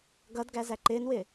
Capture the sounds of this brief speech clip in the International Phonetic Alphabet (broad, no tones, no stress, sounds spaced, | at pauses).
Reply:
ɡ ʌ d ɡ æ z æ ǃ ɪː n w ɪː